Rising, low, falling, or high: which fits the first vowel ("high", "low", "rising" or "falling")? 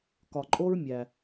low